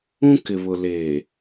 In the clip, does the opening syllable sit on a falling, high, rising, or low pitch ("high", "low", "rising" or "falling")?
high